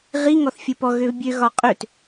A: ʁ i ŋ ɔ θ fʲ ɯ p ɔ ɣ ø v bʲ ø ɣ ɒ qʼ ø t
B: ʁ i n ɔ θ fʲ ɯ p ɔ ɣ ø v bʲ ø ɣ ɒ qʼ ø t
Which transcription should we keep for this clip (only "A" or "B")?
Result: A